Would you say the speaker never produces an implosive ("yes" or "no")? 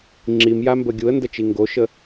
yes